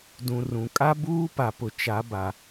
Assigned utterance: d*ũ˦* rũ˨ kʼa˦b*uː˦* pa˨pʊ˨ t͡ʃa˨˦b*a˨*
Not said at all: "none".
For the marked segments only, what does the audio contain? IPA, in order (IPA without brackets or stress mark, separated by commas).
ũ˨, uː˦, a˨